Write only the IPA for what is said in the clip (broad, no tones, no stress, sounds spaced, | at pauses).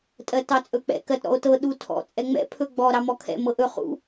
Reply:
tʼ ɜ t ɑ t͡sʼ ɵ k͡p ɛ̰ k ɜ t ɾ ɔ̰ o̯ t ɤ ɗ u tʰ ɔ̰ t͡sʼ ɛ ŋ͡m ɛ̰ pʰ ɵ ɡ͡b ɔ ɾ ɑ m ɔ kʰ ɛ̰ m ɤ ʔ ɵ χ ṵ